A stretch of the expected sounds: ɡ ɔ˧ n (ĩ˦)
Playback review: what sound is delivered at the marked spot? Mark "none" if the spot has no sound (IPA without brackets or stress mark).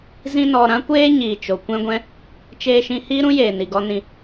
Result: ĩ˧